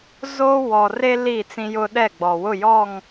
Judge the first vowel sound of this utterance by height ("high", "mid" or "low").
mid